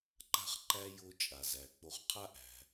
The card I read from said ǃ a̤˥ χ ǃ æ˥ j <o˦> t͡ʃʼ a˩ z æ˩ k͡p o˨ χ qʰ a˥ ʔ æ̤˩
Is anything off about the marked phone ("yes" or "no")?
no